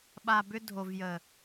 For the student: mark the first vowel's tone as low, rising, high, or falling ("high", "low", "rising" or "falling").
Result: low